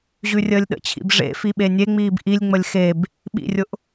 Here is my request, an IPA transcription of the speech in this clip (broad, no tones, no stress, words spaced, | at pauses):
ʑʉrʲəːlʲɗə̰t͡ɕʰḭb ʐḛ fiɓenʲeŋ͡miːb ʔilʲŋ͡məlʲ xeb | ɓḭrʲʊʔ